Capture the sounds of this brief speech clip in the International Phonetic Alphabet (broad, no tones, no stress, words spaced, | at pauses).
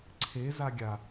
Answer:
ǀʰe zaɡʲa